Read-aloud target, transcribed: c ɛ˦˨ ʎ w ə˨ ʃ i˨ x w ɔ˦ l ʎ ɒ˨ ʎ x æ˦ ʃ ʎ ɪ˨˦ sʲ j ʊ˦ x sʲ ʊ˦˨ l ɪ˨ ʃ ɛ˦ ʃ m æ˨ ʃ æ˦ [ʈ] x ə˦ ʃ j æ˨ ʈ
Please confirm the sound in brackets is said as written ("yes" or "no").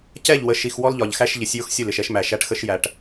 yes